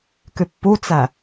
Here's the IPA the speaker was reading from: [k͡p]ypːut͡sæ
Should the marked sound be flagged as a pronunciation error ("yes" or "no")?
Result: yes